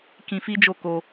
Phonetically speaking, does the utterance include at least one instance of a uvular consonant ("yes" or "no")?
no